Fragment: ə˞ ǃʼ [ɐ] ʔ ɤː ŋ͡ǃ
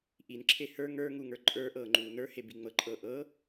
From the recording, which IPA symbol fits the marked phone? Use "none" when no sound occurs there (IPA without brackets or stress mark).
ə˞